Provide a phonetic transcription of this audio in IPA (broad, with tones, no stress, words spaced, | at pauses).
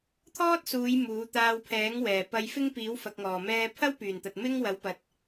t̪ʰɔː˥t̚suː˨˧j muː˨˥ t̪aː˧wpʰɛː˨˥ŋ wɛː˨˩ pɐ˧jfɪ˥ŋ piː˨˥wfɐ˨k̚ŋɔː˨˩ mɛː˧pʰɐ˥w pyː˨˩nt̪ɐ˨t̚ mɪ˥ŋ wɐ˨˥wpɐ˨t̚